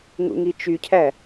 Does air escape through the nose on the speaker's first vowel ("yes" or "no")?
no